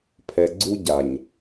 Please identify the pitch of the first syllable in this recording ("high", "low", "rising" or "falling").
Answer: low